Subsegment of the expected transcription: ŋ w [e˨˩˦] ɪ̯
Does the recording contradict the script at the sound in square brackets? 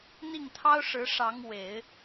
no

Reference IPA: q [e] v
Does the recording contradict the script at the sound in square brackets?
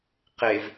no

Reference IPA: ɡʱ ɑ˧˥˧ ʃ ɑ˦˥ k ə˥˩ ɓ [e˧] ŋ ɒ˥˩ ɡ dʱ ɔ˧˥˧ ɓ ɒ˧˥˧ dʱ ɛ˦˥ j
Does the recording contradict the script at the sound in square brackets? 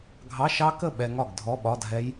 yes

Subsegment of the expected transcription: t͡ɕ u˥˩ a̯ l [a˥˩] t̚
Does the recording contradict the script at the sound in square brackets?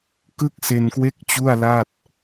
no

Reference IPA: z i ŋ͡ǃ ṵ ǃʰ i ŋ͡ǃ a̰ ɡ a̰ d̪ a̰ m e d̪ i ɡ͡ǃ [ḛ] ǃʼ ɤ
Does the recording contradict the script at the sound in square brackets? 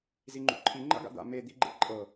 no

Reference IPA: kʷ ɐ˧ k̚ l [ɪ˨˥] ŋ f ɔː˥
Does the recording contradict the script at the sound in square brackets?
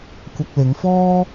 yes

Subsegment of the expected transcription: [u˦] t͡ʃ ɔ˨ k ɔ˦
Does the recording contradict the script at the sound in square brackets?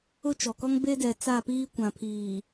yes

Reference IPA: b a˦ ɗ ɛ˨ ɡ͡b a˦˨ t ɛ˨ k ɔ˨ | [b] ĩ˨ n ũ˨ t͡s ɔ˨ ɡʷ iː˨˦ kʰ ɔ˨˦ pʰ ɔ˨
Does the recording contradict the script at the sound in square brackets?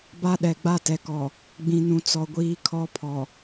yes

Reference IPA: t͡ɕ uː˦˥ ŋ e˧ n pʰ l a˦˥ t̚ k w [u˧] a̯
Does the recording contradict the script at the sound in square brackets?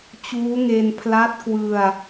yes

